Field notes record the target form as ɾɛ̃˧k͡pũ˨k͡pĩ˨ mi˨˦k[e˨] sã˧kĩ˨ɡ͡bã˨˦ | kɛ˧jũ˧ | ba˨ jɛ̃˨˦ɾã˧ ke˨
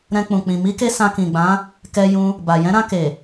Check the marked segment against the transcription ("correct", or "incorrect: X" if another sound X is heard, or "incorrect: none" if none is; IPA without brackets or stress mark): incorrect: e˧